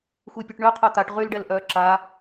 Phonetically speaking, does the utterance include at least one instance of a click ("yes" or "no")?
yes